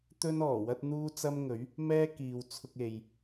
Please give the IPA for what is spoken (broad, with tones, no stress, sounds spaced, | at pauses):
t̪ ɵ˥ n ɔː˨˩ w ɐ˥ t̚ n̪ uː˥ t͡s ɐ˥ m ŋ ɵ˨˥ ɥ | m ɛː˥ k iː˨ w t͡sʰ ʊ˧ k̚ e˨ j